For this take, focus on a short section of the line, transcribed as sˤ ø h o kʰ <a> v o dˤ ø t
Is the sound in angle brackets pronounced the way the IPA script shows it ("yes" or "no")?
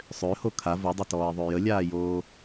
yes